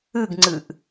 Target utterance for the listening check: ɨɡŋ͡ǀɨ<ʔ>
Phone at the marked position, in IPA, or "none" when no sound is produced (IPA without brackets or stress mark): ʔ